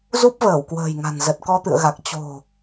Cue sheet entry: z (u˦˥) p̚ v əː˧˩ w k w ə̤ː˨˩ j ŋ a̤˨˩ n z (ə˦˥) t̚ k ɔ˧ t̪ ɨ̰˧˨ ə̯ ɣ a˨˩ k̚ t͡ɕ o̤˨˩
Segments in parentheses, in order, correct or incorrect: correct, incorrect

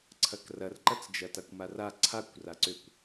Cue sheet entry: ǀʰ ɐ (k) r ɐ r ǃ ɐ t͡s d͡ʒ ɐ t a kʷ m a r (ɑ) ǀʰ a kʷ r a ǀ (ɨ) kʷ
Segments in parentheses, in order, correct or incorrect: correct, incorrect, incorrect

